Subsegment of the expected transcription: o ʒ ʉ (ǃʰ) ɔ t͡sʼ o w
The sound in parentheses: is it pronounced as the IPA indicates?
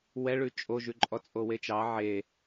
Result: no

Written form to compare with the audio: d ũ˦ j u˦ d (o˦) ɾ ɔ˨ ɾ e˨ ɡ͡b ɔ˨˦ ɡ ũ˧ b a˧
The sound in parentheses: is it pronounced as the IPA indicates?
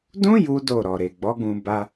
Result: no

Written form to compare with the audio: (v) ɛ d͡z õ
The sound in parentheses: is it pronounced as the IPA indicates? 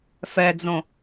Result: no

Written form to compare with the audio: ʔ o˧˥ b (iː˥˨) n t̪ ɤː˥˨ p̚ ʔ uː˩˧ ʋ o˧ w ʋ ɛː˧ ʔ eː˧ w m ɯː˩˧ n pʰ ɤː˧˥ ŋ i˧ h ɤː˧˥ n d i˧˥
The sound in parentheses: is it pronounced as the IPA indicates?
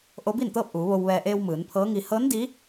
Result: yes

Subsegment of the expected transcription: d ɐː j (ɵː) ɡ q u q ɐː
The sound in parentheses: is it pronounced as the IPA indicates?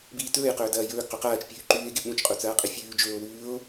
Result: yes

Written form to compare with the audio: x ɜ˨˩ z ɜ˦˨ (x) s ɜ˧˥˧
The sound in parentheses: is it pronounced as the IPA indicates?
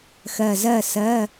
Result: no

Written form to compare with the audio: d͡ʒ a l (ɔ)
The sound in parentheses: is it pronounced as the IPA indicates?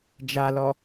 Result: yes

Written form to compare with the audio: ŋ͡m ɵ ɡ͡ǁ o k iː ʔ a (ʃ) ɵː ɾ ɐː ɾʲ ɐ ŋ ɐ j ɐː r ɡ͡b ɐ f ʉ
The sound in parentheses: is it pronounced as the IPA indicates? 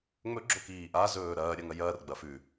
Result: no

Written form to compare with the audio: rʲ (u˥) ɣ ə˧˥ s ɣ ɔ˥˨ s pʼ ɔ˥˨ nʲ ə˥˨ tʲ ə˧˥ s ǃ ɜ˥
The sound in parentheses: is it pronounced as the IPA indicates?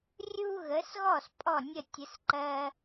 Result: yes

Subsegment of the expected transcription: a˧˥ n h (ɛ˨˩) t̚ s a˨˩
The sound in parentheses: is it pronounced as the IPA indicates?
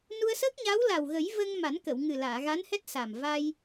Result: no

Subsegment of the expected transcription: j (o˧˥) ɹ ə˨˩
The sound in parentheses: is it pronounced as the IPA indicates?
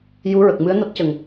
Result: no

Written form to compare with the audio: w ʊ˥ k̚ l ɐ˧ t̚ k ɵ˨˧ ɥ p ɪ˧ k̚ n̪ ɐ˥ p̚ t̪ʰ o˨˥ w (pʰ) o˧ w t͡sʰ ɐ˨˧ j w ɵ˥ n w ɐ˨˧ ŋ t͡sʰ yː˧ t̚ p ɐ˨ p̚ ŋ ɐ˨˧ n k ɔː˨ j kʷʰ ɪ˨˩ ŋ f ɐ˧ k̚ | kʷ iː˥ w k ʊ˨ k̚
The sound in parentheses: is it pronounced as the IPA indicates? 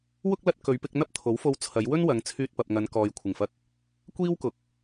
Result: no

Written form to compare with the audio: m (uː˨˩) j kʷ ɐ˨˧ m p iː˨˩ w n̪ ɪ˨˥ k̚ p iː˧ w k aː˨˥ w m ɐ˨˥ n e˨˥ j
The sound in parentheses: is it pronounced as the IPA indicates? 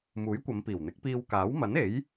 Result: no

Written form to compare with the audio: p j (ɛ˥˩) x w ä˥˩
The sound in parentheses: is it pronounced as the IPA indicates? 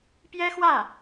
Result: no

